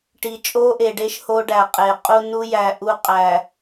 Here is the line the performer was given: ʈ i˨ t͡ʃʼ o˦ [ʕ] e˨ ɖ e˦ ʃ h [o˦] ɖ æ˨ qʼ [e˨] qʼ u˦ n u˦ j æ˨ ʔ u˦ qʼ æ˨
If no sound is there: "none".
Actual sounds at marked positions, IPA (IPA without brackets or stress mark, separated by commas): ʔ, o˦, e˨